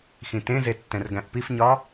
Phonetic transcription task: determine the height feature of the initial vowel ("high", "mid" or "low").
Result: high